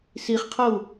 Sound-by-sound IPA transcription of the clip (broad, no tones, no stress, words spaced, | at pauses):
siχqʰou̯